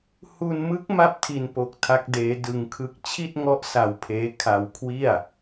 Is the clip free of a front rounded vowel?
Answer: yes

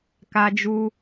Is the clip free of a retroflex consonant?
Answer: yes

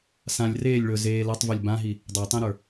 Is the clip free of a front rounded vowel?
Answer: yes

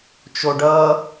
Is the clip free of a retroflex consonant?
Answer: no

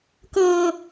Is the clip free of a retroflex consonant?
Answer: yes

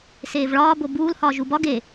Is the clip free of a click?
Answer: yes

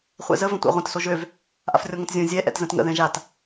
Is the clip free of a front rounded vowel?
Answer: no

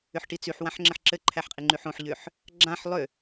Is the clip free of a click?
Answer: no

